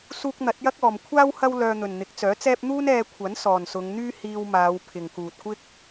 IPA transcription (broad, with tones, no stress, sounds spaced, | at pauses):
s uː˧ k̚ n̪ ɐ˨˥ t̚ j ɐ˥ k̚ ɔː˨ m kʷʰ aː˥ w h ɐ˥ w l œː˧ n̪ ɵ˨ n n̪ ɪ˨˥ k̚ t͡s œː˨˥ t͡s ɛː˥ p̚ n̪ uː˥ n ɛː˧ kʷʰ ɐ˨˥ n s ɔː˨ n s ʊ˨˧ ŋ n̪ yː˥ h iː˧ w m aː˨˧ w pʰ ɪ˨ ŋ k uː˨ t̚ kʷ ɪ˥ k̚